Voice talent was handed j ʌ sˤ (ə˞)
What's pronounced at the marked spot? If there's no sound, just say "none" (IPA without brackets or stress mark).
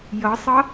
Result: ʌ